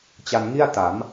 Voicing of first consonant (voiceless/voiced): voiceless